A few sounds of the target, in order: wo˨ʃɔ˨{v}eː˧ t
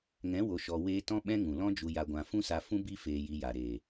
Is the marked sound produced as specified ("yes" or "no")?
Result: no